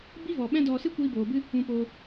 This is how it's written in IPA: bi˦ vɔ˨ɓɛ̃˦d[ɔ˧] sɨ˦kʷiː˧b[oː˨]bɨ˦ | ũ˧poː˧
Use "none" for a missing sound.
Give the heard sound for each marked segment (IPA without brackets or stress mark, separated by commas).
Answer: ɔ˧, oː˨